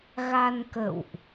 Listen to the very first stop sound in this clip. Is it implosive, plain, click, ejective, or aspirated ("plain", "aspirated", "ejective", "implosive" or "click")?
plain